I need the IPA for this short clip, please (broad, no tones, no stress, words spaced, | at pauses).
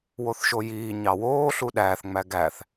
woθʃojiːɲɑ woːɬu ɗæːθŋ͡mæ ɡæθ